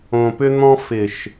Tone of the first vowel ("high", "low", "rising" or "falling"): low